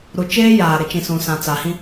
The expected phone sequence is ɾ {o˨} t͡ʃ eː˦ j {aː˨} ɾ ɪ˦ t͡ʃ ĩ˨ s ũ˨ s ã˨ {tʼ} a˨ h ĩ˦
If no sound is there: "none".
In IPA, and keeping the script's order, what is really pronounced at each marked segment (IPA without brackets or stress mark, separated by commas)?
u˨, aː˨, t͡s